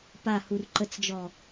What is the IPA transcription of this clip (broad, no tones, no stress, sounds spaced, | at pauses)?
p a h u r ǃ ə t͡s d͡ʒ ɔ